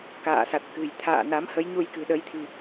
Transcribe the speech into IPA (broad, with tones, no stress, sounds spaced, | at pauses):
k a̰ː˧˨ s a˨˩ t̚ k ɨ̤˨˩ j t̪ʰ a̰ː˧˨ n a˨˦ m h ə˨˦ j ɲ u˧ j k ɨ̤˨˩ ɗ ə˨˦ j t̪ʰ i̤˨˩